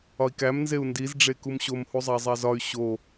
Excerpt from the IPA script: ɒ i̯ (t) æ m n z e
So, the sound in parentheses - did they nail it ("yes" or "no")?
no